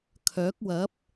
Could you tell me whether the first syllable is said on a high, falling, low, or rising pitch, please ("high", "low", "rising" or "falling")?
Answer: rising